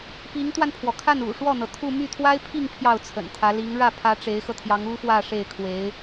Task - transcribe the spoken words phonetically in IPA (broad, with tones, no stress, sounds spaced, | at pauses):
p i˧˥ ŋ t̪ w a˧ n pʰ w ɔ˩ kʰ a˥˩ n ṵ˨˩ ʂ w ɔ˥˩ n̪ ɤ˩ t̪ʰ u˥˧ m y˥˩ t̪ʰ w a˥ ɪ̯ pʰ i˥˧ ŋ pʰ j ɑ˥˩ ʊ̯ t͡sʰ ə̰˨˩ n t̪ʰ ä˧˥ l i˧˥ ŋ ɻ ä˥˩ pʰ ä˧˥ ʈ͡ʂ e˧˥ ɪ̯ x ɤ˧ t̪ʰ j ɑ˧˥ ŋ u˥ f w ä˥˧ ʂ e˥˩ ɪ̯ kʰ w e˧˥ ɪ̯